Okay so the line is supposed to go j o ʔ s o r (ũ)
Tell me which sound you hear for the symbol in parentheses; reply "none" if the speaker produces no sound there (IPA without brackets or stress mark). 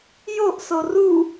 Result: u